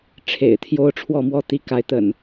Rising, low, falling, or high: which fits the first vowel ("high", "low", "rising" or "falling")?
low